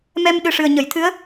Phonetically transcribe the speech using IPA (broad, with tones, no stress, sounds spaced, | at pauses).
m ɛ˧ m ɗ ɨ˨˩ ʂ ɨ˨˩ ə̯ ɲ ə˨˩˨ j t̪ʰ ɨ˧˥ ə̯